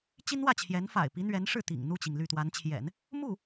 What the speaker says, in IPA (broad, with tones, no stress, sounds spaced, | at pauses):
t͡ɕ i˥ n w ä˥˩ t͡ɕʰ j ɛ˧˥ n f a̰˨˩ ɪ̯ p i˧˥ n̪ ɥ ɛ˧˥ n ʂ ɻ̩˥˩ t̪ ḭ˨˩ ŋ n̪ u˥˩ t͡ɕ i˩ ŋ l y˥˩ t̪ w a˧˥ n t͡ɕʰ j ɛ̰˨˩˦ n | m u˥˩